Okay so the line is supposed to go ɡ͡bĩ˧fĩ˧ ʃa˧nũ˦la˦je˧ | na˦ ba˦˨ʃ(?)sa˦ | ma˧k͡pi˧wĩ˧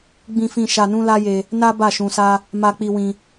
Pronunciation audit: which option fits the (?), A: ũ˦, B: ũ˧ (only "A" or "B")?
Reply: B